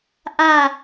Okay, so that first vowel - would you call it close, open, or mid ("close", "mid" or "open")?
open